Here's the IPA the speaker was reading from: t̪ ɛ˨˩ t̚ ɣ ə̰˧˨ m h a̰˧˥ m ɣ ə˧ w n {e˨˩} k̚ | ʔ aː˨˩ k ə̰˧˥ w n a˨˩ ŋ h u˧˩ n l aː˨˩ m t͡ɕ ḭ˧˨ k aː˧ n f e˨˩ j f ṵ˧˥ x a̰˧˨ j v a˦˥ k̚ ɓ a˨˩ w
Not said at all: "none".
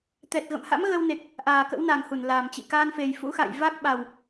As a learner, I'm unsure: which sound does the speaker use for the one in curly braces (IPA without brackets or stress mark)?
e˨˩